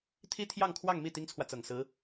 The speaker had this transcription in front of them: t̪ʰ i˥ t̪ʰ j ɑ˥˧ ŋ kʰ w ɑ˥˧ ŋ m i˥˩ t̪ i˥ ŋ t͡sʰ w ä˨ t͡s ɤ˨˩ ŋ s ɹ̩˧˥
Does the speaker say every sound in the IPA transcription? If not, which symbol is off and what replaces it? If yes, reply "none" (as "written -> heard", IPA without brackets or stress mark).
none